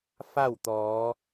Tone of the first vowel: falling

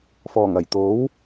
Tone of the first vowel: low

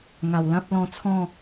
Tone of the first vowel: low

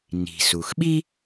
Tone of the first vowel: low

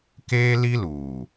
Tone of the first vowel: high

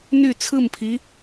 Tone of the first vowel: falling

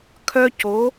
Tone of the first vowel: high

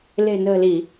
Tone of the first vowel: low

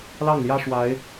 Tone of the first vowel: falling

